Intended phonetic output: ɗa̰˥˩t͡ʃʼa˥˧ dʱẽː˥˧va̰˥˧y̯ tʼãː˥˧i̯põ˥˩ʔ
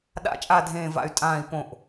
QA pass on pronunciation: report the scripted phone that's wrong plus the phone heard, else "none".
none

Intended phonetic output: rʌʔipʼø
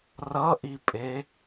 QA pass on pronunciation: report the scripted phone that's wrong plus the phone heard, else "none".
ø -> e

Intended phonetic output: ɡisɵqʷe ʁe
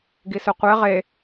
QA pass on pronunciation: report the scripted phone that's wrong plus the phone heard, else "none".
none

